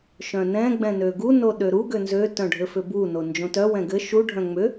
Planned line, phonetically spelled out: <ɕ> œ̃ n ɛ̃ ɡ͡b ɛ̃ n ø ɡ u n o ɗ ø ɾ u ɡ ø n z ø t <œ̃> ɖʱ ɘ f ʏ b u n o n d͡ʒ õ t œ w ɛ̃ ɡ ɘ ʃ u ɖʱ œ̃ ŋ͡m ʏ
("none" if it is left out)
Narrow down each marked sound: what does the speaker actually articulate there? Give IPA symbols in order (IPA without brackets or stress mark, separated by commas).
ʃ, œ̃